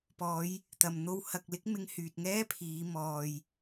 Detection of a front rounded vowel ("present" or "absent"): present